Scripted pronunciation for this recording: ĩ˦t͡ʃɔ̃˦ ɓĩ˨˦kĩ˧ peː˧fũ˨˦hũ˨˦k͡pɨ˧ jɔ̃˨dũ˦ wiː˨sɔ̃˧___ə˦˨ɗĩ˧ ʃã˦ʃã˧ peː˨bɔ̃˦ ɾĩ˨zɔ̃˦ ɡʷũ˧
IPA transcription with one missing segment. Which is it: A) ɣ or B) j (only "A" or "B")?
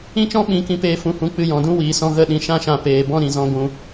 A